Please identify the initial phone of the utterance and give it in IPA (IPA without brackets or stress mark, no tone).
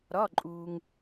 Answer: ɾ